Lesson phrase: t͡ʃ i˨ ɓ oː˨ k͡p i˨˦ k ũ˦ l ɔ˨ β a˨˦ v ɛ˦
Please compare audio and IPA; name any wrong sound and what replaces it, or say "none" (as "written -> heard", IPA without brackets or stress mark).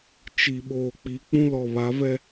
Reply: k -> k͡p